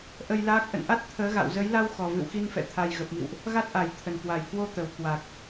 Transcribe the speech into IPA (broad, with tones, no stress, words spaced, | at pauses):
ʔə˧jlaː˦˥k̚ ʔə̰˧˨nʔa˦˥t̚ t̪ʰəː˨˦ɣa̰˧˨w zə˨˦jla˧w xɔ˨˩vɨ̰˧˨wxi˧n fɛ̰˧˨t̪ʰa˨˩jɣə˨˩p̚mḭ˧˨wʔ | ɣa˦˥t̚ʔa˨˩jt̪ʰə˨˩n kwa˨˩jkwo˧t̪ə˨˩w kwa˨˩k̚